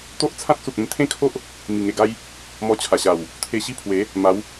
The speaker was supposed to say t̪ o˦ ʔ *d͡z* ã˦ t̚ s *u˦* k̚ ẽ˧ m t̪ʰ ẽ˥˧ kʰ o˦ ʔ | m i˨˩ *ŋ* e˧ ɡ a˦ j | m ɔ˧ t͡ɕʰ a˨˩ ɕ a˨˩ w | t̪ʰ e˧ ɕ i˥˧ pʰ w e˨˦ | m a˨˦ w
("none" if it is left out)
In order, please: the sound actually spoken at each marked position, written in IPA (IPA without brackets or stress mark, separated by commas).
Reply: t͡sʰ, u˨, ŋ